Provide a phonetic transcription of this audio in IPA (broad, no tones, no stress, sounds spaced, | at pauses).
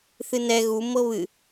θ ɨ n ɛ ɣ u m ɤ β ɨ